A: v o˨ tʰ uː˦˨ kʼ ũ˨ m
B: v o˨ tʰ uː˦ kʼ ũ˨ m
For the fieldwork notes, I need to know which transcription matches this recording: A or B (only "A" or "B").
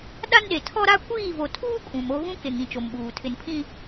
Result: B